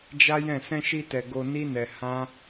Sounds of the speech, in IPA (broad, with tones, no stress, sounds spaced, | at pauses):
d͡ʒ a˦ j ɛ̃˦˨ s ɛ̃˧ ʃ i˧ t ɛ˨ ɡ o˧ n i˦ n ɛ˧ h ã˦